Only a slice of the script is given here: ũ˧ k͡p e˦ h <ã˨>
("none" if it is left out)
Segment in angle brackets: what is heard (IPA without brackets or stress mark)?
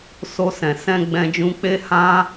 ã˦